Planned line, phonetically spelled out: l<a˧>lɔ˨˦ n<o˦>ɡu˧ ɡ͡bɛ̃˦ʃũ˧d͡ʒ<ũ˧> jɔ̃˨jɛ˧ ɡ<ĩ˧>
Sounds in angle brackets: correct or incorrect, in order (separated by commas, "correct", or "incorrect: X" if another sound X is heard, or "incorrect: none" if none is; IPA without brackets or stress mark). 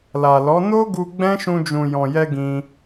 incorrect: a˨, correct, incorrect: ũ˨, correct